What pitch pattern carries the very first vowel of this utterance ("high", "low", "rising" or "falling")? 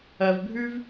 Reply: low